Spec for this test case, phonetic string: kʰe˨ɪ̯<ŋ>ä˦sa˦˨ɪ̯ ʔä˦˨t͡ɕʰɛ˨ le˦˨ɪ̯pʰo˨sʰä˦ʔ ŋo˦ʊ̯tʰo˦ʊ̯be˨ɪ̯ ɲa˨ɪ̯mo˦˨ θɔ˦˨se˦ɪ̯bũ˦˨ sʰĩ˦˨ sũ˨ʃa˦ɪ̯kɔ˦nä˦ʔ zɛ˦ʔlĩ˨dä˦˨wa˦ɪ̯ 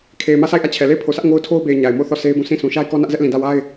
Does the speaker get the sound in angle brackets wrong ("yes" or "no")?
yes